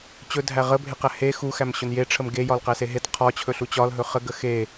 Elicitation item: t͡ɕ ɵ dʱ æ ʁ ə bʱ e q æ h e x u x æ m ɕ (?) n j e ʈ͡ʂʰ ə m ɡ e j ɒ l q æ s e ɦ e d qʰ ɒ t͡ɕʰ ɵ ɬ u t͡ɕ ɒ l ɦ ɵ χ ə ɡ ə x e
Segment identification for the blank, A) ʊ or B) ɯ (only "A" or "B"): A